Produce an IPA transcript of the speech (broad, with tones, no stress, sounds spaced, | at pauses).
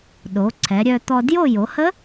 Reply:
ɗ o˩˧ ǀʰ ɛ˩˧ ɾʲ œ˧ t̪ ɔ˧ d j o˥˧ j o˩˧ h ə˦˥